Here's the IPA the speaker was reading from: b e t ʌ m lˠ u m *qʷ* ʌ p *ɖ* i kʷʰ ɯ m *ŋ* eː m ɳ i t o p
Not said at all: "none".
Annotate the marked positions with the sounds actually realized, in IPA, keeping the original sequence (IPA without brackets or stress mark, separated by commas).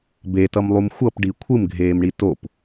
xʷ, ɖ, ɡʱ